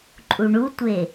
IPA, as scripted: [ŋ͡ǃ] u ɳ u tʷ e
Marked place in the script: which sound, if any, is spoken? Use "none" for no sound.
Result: ǃʼ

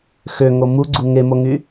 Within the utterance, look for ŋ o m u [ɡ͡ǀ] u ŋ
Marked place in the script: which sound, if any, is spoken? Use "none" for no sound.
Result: ɡ͡ǀ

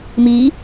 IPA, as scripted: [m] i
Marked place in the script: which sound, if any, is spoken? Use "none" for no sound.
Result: m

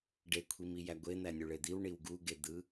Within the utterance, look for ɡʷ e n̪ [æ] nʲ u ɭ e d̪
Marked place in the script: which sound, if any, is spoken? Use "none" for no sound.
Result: æ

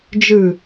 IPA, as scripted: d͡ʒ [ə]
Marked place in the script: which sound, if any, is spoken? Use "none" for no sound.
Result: ɯ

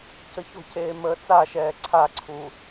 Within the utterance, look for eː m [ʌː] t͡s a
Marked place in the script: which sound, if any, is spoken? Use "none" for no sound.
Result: əː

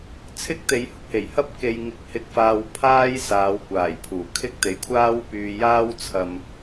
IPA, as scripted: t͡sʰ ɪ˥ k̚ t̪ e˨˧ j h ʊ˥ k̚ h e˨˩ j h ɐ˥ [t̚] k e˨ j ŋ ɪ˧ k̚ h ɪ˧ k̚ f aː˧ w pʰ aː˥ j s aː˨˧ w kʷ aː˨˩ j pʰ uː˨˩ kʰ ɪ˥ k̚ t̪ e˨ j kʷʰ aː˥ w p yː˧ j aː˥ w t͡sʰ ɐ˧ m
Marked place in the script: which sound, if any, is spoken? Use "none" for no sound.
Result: p̚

